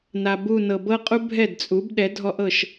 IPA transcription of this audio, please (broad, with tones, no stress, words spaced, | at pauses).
na˩bu˧˩ nɤ˩bɤ˦qʼu˦ bʱɛ˥˩dt͡sʼu˩˥b ɗɛ˩˥dʱɔ˦ʔɤ˥˩ʃ